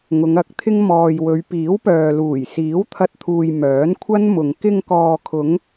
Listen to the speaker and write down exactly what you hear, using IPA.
ŋʊ˨˧ŋɐ˨˥k̚t̪ʰɪ˥ŋ mɔː˧j wɵ˨˧ɥ piː˨˥wpœː˨ luː˨˩jsiː˨˥wt̪ʰɐ˧t̚t̪ʰuː˨j mœː˨˥nkʷʰɐ˥n mʊ˧ŋ kɪ˧ŋkɔː˨kʰʊ˨˧ŋ

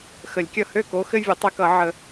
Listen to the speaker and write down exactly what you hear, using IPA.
xə˨˩˦lʲkʲʌ˥˩ hø˥˩ko˨˥ xɘ˦ vʲɘ˨˥tˤɘ˨˥kʌ˨˩˦ ʕə˨˩˦

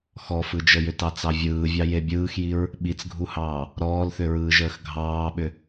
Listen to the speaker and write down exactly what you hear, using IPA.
xɔfɯd͡ʒəjʏ tɑt͡sɑvʲɯːvʲɑ jebʲɯːxjiɹ | ɓit͡sɡʱuhɑː | ɾɔːlθʏɹɯːʒəːx ɡʱɑːɓʏ

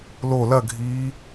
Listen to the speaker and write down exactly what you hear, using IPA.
lo lɐɡʱiː

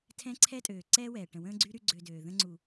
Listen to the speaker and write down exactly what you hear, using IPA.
tʰɛ̃˦ǀʰɛ˦tʼøː˨ ǀɛː˦wɛː˨ ʈə̃˨wə̃ː˦ɡ͡ǀy˦ ɾy˦ɡ͡ǀø˧døː˨ ðə̃˧ŋ͡ǀu˨

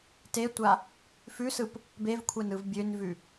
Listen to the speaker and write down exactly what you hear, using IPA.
tetʷa | fʉsɯp | bevkʷʰɛn ɯvbʲønvʉ

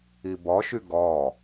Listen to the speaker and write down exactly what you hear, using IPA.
ibɔʃy ɡɔ

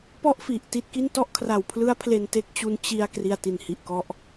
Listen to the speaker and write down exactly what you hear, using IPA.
pɔ˥˩ʔfi˨˩ʔ ti˥˩t̚ki˥˩n tɔ˥˩ʔkʰra˨˩wpʰlɯ˦˥a̯ pʰle˧nte˦˥k̚t͡ɕu˧n t͡ɕi˧a̯ kri˧a̯ti˨˩nhi˨˩ʔkɔ˦˥ʔ

